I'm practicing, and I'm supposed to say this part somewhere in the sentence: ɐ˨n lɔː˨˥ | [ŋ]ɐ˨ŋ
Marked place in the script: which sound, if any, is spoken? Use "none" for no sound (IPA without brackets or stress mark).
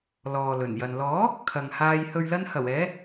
kʰ